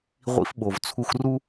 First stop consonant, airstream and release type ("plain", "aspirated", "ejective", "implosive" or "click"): implosive